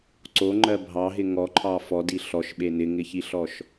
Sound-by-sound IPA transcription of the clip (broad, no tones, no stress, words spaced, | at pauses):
ǀoŋ͡ǃɜ bʱɑɦɪ ŋɔǃʰɑ fɔdi ɬɔʃɓe nɪŋɪçiɬɔʃ